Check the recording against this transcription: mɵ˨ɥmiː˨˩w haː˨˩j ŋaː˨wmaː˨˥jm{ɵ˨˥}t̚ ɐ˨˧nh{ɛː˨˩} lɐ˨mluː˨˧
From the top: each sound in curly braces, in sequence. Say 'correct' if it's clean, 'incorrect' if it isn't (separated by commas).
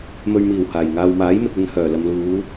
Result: incorrect, incorrect